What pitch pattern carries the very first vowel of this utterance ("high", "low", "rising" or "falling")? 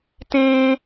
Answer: high